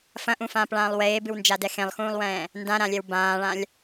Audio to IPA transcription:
f ɐ̃ ʔ ũ f ãː p ɭ ãː lˠ w eː b ɨ w n d͡ʒ a d ɛ x ẽ lˠ x ũː lˠ w ɛ̃ː | n d ã ɾ ã lʲ ɛ w b ãː ɭ ã lʲ

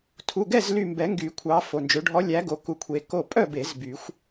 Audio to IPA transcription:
tʰ u˩˧˩ ɡ ɛ˥˨ z l y˧˩ m b ɛ˨˩˦ ŋ ɡ y˨˩˦ kʷʰ ɑ˨˦ f o˩˧˩ n d͡ʒ ø˨˦ ɖʱ ɔ˨˦ lʲ æ˨˦ ɡ o˨˦ k u˧˩ kʷʰ e˨˦ k o˥˨ pʼ œ˥˨ b e˨˩˦ z b y˨˩˦ xʷ

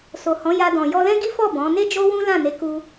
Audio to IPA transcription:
s o˨ h ɔ̃˨˦ j a˧ d ɔ̃˨ j ɔ˧ l ɛ̃˦ ɡ i˦ f ɔ˦˨ b ɔ̃˨˦ n e˦ d͡ʒ o˦ w ũ˦ l ã˦˨ n e˨˦ k u˧

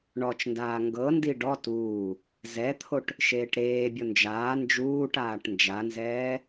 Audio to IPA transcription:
ɳ ɔ t͡ʃ n d aː ŋ ɡ ɤ n d i ɖ ɔ t uː | z ɛ t̪ʰ o ʈ | ʃ eː ʈ ɾ eː bʲ o n d͡ʒ aː n d͡ʒ uː ʈ aː ʈ n d͡ʒ a n z ɛː

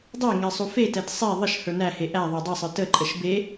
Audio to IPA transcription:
dˤ ɛ ŋ ɛ sˤ u f e t ɛ t sˤ e ðˤ ə ʃ h ə˞ n æ h e ʔ æ ðˤ ə˞ dˤ ɛ sˤ ə˞ t ə ǃʼ ə ʃ b e

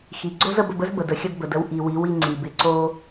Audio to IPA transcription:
x i˨ ɡ͡ǀ o˦ z ə˧ b ə˧ b ə˦ z b ə˨ d ə˨ xʲ ə˧ d b ə˨ d ə˧ w ʔ i˨ w i˨˦ w i˧ ŋ͡ǀ i˨ b ɪ˧ ǀ o˧

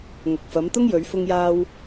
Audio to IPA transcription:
ŋ ɐ˨ k̚ f ɐ˨˧ m t̪ ʊ˥ ŋ j ɵ˨˧ ɥ f ʊ˧ ŋ j aː˧ w

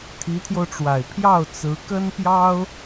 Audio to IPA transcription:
t̪ʰ i˧˥ t̪ʰ j o˧ ʊ̯ ʈ͡ʂ w a˨˩ ɪ̯ pʰ j ɑ˥˩ ʊ̯ t͡s ɹ̩˧˥ k ə˥ n p j ɑ˥ ʊ̯

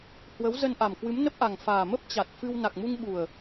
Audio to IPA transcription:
h w ə˨˦ w z ə˧ n ʔ a˨˩ m k w ɨ˨˦ m n ə˦˥ p̚ ʔ a˨˩ ŋ f aː˨˩ m ə˦˥ p̚ t͡ɕ a˨˩ t̚ f ɨ˧ w n a˨˩ k̚ m u˧ ŋ ɓ u˨˩ ə̯

